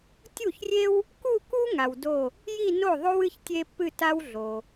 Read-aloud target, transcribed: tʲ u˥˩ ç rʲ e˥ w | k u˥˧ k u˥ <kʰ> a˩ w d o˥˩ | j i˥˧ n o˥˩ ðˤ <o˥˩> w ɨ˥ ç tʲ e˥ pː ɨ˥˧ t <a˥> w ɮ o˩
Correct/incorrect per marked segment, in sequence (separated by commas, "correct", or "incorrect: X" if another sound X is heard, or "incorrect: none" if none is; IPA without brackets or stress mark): incorrect: ŋ, incorrect: o˥, correct